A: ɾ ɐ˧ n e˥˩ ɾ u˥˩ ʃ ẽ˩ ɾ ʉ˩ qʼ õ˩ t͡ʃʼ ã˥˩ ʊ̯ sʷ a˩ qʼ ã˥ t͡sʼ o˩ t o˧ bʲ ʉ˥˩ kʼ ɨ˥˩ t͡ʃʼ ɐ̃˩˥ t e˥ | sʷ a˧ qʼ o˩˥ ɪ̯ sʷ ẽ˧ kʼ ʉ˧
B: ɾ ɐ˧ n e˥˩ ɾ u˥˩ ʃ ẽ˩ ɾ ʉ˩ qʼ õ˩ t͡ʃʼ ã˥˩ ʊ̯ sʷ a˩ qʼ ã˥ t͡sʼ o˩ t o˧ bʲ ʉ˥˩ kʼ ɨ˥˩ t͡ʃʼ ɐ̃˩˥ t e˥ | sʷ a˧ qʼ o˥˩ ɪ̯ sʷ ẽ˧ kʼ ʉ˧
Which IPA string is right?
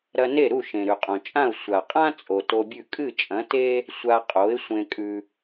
A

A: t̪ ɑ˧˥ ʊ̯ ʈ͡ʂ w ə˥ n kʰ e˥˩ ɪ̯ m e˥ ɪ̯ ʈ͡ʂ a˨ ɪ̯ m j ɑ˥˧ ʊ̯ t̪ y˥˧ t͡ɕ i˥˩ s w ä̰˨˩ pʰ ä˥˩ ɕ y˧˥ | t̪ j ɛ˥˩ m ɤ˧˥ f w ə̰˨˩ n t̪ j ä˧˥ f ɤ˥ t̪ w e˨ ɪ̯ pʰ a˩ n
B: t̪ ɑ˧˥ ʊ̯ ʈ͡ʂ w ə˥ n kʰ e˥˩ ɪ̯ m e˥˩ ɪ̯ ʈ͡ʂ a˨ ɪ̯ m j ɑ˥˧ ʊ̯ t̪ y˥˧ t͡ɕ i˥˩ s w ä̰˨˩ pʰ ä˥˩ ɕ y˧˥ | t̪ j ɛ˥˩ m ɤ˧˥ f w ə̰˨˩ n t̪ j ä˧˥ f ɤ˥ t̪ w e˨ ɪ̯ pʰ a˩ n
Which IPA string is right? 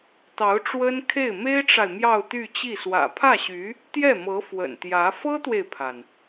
A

